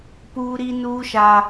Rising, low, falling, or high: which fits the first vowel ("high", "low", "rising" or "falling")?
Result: high